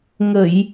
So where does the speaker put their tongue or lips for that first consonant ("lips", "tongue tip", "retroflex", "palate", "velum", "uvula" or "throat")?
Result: velum